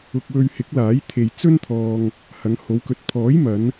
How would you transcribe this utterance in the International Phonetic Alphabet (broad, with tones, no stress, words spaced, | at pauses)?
ʊ˧k̚wɵ˧ɥhɪ˨˥k̚laː˨˥j t̪ʰe˨j t͡sɵ˥nt̪ʰɔː˧ŋ | hɐ˨˧ŋho˨˧wkɵ˨˥t̚ pʰɔː˨˥jmɐ˨˧n